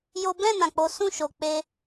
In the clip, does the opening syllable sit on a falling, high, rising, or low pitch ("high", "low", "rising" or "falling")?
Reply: high